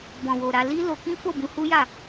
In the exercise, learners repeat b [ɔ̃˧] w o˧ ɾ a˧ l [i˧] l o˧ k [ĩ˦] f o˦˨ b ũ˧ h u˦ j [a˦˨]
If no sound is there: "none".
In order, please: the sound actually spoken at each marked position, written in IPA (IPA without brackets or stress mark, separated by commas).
ɔ̃˧, i˦, ĩ˦, a˦˨